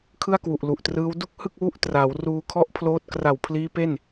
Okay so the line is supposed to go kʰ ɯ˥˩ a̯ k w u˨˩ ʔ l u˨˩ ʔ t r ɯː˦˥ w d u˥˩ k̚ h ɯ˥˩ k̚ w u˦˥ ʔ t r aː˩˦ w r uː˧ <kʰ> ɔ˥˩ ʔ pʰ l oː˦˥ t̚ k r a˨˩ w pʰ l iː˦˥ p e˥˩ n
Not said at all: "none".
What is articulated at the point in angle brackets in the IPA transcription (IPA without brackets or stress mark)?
kʰ